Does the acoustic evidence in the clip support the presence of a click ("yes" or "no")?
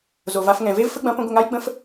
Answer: no